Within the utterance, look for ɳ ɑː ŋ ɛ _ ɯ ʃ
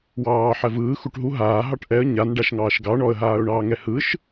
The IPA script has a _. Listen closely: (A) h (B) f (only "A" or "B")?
A